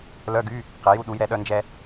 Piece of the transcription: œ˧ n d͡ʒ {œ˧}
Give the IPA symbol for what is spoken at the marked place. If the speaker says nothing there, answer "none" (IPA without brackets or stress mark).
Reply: ɛ˧